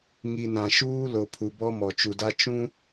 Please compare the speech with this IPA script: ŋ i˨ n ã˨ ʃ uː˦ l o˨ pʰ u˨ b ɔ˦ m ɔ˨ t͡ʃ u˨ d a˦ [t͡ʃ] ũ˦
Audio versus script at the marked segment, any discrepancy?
no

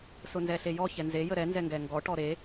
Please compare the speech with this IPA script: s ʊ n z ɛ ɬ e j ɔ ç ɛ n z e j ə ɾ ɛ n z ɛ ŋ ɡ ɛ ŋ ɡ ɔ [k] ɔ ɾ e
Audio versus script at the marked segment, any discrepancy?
yes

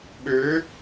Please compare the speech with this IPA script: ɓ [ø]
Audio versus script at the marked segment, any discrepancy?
no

